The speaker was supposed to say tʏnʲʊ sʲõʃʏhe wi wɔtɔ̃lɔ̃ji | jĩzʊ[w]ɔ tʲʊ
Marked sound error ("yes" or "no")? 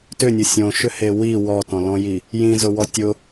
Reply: no